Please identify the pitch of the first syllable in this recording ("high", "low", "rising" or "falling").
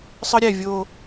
high